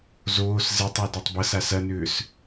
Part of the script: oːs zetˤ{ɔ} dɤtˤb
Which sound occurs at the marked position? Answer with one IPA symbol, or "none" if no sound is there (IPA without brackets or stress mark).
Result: ɔ